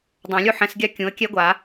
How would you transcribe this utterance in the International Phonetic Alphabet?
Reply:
dˤõ˨˩˦lʲu˦ ħɛ̃˨˩˦sɡʲa˦ kʲũ˩˥ə̯kʲɛ˦ɡʷa˨˩˦

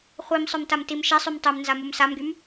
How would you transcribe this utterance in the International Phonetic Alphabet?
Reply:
χʷim sˤœmtamtimʃɛ sˤymtˤømnza mumsamɡym

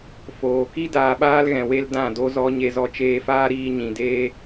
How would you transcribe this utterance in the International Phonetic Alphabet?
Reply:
foː˨ki˦ daː˧ɓaː˦lɣɛ̃˨ we˧l dã˦˨do˦zɔ˦ ɲe˧zɔ˧t͡ʃeː˧faː˦ ɾiː˧ɲĩ˨deː˦

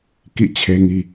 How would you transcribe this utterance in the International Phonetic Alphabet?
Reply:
kḭ˦˨t͡ɕʰe˦ŋi˦

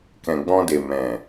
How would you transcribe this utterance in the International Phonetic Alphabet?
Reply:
kɛ̃˨ɡ͡bɔ̃˧de˨ mɛ̃˨

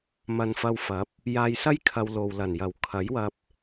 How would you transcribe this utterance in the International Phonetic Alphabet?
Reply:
mɐ˧nfɐ˧wfɐ˨˥p̚ | jaː˧jsɐ˥j kʰɐ˧w lo˨wlɐ˨˩n jɐ˨˩wkʰɐ˨˥jwɐ˧p̚

